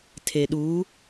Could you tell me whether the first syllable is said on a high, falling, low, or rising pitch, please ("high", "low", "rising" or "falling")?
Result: low